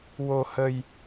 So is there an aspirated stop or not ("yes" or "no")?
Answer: no